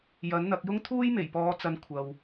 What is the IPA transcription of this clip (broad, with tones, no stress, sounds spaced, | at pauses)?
j ɐ˨˥ n n̪ ɐ˧ k̚ j ʊ˥ ŋ t̪ʰ uː˥ j m e˨˩ j p ɔː˨˧ t͡s ɐ˨˧ n kʷʰ ɐ˨ w